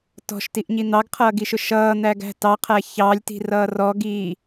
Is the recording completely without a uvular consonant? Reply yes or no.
no